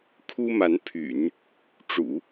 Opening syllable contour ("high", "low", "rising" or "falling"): high